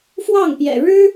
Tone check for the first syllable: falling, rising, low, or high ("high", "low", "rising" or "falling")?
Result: falling